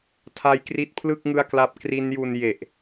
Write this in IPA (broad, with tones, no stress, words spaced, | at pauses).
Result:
tʰa˦˥jkri˦˥t̚pʰlɯ˥˩k̚ ŋɯ˥˩a̯kla˥˩p̚ kri˦˥nju˧n je˨˩ʔ